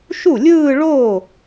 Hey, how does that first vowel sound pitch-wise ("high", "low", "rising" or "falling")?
falling